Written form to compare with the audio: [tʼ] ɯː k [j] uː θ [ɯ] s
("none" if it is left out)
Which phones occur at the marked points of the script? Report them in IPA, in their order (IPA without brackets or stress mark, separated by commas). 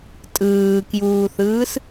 tʼ, j, ɯː